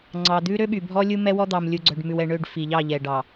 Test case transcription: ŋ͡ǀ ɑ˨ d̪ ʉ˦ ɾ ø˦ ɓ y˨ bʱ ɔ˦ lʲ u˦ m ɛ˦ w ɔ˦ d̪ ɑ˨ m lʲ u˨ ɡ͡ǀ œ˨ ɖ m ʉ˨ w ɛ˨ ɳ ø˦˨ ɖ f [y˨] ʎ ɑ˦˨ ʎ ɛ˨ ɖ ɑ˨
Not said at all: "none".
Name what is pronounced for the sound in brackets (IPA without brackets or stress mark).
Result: i˨